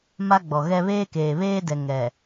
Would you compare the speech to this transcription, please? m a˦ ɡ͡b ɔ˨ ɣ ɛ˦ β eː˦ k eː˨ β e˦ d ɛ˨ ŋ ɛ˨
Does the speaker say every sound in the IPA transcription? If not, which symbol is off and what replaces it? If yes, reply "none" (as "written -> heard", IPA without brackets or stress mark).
e˦ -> eː˦